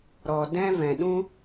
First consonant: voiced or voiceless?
voiced